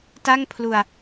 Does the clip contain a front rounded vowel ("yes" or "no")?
no